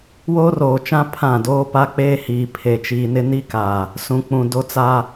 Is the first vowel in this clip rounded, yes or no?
yes